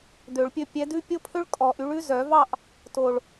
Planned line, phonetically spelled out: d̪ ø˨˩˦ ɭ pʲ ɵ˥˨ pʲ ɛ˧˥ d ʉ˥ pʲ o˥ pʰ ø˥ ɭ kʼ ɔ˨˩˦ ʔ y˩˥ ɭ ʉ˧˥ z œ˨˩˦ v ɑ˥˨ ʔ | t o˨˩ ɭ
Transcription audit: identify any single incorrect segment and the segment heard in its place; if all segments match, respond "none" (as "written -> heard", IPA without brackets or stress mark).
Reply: none